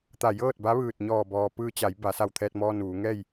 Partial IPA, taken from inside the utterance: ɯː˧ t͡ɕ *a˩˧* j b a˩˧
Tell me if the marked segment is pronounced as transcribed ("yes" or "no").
yes